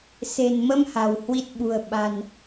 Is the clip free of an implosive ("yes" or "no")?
no